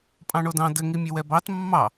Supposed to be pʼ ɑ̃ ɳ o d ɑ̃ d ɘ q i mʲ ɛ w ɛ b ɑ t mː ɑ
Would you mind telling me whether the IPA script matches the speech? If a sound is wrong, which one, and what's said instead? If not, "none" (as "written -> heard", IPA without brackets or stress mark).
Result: q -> ŋ